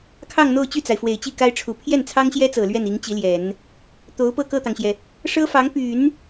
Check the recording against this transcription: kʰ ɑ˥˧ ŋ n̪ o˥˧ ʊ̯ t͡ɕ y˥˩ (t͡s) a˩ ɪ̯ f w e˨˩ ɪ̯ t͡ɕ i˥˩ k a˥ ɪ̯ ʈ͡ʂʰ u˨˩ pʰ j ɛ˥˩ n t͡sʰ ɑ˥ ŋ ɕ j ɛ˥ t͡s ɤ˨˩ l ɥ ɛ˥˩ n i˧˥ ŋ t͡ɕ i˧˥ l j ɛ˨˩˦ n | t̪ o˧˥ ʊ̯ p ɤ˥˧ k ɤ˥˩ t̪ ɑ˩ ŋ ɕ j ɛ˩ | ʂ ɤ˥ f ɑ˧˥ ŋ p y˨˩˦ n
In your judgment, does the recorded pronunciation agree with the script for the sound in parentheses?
yes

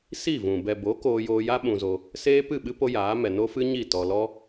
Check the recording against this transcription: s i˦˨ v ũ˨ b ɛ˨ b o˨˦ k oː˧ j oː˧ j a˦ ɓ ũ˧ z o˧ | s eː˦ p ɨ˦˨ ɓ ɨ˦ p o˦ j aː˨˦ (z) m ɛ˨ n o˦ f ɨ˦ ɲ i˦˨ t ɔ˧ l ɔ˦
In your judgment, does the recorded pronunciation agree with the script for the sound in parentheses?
no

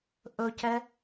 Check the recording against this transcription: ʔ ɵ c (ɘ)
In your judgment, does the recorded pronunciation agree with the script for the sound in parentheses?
no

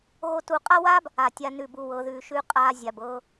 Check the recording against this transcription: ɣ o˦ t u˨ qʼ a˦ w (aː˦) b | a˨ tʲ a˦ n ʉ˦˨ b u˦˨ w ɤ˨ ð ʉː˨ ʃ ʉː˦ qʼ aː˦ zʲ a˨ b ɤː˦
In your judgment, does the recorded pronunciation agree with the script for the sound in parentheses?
yes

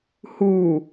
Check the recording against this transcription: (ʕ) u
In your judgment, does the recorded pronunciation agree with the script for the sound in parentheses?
no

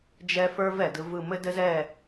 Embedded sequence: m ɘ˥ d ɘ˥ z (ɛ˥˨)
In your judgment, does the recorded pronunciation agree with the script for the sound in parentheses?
yes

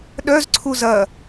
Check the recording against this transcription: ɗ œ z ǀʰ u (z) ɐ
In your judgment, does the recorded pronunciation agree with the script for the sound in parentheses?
yes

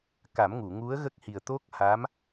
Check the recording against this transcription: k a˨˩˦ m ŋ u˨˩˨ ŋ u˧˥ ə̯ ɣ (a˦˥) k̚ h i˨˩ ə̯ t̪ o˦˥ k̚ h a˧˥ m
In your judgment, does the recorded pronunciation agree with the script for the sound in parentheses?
no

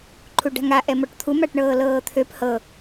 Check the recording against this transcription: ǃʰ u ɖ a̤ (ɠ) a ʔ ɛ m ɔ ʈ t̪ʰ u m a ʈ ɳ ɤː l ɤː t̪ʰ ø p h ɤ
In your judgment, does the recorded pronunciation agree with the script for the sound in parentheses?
no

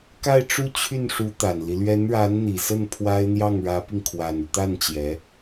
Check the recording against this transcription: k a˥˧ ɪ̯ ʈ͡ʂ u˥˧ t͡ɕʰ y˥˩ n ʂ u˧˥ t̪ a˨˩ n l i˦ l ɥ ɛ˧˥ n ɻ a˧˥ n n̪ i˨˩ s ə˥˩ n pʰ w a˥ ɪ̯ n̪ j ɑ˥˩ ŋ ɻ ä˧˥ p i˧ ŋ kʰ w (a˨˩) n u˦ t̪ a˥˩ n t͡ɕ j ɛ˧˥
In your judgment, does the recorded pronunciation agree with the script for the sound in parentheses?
yes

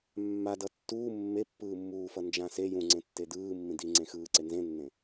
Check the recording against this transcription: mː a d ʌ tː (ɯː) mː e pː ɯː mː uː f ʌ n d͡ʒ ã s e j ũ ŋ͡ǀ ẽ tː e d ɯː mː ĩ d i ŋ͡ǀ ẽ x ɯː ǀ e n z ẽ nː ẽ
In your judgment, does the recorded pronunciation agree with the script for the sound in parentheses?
no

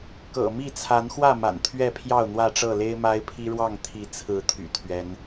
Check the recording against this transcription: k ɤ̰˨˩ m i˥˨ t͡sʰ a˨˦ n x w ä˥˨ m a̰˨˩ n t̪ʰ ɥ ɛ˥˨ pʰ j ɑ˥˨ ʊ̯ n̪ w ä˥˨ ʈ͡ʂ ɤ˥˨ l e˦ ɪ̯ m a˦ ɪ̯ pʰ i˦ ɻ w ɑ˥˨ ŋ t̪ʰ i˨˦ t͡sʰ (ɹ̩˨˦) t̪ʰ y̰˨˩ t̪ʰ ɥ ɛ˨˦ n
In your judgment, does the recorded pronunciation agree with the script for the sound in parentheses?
yes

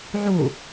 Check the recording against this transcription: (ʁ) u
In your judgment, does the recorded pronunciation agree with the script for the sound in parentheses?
no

